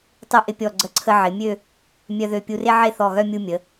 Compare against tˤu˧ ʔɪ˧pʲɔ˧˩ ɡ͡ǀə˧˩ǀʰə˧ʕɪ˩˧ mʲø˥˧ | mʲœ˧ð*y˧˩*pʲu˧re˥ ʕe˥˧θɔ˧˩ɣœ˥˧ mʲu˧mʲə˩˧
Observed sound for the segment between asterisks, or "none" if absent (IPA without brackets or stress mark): ø˧˩